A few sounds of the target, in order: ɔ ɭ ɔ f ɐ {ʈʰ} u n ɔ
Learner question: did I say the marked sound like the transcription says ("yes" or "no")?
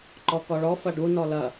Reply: no